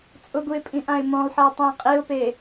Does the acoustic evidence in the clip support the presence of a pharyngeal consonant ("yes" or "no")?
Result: yes